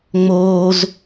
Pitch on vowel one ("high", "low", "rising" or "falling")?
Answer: high